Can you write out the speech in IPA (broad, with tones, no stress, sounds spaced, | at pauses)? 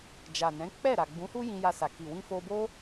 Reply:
d͡ʒ a˨ n ɛ̃˨˦ k͡p ɛ˦˨ ɾ a˨ ɡ͡b ũ˨˦ h u˦ j ĩ˧ j a˧ s a˨ k i˨ w ĩ˧ f o˧ b o˦